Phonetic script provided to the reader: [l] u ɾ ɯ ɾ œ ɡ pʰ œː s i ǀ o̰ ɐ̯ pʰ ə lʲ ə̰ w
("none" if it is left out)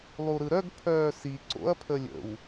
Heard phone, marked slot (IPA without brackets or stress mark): lˠ